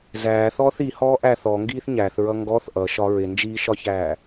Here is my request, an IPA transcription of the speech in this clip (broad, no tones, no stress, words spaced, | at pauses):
zæːθɔːθ i hɔːʔæθ ɔ ŋɡiːθɲæθɹʌ ŋɡɔθ ʔʌʃɒ ɹɪnd͡ʒiːʃɒçæː